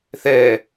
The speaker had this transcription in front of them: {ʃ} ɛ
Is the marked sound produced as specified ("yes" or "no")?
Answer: no